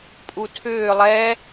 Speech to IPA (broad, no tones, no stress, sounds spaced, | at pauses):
pʼ u tʰ ʏː lˠ ɛ